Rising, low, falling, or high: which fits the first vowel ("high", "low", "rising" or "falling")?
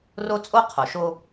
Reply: high